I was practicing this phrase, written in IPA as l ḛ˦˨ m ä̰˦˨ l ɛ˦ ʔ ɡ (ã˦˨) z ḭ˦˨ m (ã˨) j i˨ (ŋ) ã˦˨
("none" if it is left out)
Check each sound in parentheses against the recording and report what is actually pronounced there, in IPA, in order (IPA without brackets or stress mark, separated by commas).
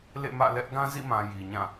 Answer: ã˦, ã˨, ɲ